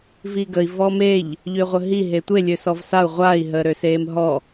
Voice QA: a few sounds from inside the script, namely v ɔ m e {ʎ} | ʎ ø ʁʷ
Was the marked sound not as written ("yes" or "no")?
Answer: no